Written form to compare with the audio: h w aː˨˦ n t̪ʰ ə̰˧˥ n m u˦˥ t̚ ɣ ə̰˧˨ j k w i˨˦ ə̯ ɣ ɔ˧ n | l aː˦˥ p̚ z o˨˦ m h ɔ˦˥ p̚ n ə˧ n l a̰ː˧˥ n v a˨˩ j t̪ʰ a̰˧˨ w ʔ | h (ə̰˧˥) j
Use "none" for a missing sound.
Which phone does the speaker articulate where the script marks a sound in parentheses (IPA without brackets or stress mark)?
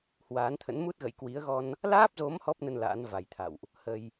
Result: ə˧